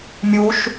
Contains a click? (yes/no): no